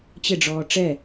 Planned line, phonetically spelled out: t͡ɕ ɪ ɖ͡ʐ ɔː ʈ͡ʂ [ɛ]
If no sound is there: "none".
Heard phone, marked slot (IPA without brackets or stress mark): ɛ